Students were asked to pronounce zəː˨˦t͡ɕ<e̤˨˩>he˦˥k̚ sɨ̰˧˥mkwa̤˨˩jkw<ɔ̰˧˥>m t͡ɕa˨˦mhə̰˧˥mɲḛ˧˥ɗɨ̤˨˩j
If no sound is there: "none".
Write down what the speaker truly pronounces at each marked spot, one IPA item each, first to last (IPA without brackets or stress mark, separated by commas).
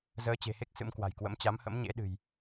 e̤˨˩, ə̰˧˥